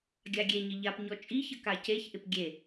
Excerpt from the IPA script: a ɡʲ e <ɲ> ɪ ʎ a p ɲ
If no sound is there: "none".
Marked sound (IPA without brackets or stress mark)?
ɲ